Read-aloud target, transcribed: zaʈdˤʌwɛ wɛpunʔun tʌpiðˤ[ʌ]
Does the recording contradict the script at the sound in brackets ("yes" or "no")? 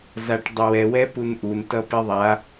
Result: yes